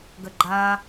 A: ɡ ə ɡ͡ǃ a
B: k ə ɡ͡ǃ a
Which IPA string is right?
A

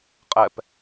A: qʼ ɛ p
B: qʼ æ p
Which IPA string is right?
A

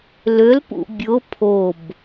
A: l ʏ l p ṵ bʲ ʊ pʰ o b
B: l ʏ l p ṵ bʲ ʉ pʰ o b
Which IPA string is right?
A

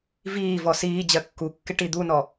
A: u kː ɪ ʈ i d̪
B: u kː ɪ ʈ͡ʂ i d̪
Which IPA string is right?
A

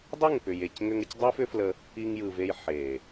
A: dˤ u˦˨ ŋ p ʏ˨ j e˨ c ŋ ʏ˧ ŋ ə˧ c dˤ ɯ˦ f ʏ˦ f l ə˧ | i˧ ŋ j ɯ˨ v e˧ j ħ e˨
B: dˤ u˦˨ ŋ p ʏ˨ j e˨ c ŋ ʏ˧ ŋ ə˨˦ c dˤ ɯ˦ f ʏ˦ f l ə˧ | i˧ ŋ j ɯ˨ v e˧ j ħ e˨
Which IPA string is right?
A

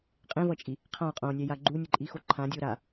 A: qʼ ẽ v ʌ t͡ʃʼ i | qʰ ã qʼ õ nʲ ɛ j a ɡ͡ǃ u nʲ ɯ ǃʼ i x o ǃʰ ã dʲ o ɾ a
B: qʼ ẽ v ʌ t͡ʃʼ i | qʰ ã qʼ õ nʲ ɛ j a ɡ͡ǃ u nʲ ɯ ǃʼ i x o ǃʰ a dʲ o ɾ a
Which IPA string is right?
A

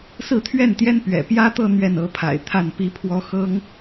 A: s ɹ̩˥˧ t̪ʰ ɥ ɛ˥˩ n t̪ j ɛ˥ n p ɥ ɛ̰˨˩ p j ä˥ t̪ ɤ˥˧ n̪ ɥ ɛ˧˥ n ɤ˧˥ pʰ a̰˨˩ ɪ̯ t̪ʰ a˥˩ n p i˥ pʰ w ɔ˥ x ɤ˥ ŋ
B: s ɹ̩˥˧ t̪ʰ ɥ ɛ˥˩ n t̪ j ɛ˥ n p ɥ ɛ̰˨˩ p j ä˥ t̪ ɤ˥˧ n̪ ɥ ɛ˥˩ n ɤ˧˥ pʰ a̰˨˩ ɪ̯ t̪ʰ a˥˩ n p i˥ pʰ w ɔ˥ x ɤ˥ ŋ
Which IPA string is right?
B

